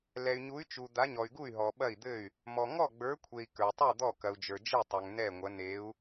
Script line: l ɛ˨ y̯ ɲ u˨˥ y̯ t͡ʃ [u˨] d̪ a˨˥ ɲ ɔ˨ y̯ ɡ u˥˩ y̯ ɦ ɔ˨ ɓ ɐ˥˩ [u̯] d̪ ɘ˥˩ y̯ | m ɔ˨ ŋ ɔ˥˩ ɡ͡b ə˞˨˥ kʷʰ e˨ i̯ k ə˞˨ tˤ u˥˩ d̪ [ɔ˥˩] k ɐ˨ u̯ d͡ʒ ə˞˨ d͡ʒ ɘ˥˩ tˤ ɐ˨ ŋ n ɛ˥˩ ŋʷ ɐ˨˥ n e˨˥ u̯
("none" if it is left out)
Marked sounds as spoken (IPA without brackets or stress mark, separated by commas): u˨, i̯, ɔ˥˩